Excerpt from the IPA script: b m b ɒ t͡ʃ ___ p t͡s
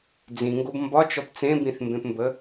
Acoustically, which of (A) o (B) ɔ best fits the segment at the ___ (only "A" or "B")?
B